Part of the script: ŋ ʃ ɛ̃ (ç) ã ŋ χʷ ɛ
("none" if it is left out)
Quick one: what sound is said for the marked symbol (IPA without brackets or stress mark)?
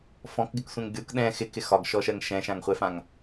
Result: ʃ